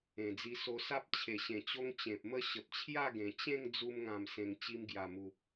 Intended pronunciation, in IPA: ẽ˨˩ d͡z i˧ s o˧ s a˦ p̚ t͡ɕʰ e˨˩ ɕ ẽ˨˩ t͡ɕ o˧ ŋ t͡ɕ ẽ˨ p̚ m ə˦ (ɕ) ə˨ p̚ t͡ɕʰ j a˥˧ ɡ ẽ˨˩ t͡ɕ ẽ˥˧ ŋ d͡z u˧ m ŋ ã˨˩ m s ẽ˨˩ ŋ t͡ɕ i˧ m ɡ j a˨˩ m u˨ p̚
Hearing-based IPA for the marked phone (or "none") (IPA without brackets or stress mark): ɕ